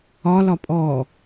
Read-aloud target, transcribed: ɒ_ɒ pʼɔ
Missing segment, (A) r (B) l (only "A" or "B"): B